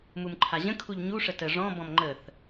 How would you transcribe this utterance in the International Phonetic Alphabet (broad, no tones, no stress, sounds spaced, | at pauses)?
m u m ǃʰ a ʑ ə̃ kʰ u ʎ ɲ u ʂ ə t ə ʐ ɔ̃ b ɔ̃ m ŋ͡ǃ ə θ